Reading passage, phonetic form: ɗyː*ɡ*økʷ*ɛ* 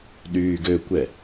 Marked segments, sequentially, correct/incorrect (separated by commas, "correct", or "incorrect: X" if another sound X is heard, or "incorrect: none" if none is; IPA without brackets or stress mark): correct, correct